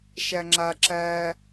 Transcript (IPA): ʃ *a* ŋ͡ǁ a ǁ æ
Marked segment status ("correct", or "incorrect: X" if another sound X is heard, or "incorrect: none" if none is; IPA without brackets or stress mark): incorrect: æ